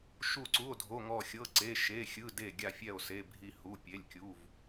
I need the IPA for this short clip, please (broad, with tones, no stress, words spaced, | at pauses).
ʃu˧˩ǀu˩˧˩o̯dʱo˩˧˩ŋɔ˧˩ xʲɤ˩˧˩ǀe˩˧˩ ʃe˩˧˩xʲɯ˩˧˩ de˧˩ɡʲa˧˩fʲɛ˧˩o̯ se˩˧˩bʱi˧˩hu˩˧˩ pʲe˩˧˩lʲkʲu˩˧˩v